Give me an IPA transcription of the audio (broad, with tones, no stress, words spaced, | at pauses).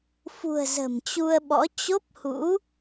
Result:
fṳ˨˩ə̯ zə̤˨˩mt͡ɕu˧ə̯ɓɔ̰˧˥ t͡ɕo˦˥p̚hṵ˧˥